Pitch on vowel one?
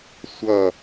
falling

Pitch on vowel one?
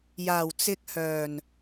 low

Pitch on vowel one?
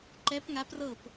rising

